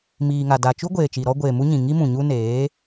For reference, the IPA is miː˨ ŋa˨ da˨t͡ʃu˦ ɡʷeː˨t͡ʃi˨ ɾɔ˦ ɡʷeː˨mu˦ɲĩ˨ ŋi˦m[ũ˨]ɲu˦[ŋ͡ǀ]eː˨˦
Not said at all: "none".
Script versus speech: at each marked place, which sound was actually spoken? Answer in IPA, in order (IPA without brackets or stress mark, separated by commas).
ũ˨, n